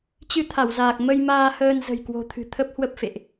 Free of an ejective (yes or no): yes